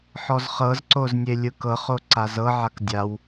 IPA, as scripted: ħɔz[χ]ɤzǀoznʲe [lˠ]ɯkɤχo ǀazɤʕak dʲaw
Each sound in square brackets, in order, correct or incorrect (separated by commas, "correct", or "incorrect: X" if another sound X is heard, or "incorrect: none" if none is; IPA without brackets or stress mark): correct, incorrect: lʲ